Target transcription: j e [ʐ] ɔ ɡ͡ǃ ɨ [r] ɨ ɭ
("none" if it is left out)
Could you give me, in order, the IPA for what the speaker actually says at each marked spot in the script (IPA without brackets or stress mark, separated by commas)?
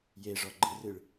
ʐ, r